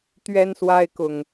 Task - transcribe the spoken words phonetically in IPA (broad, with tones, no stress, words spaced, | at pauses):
t̪ɥɛ˦nswa˦ɪ̯kʊ˨˩ŋ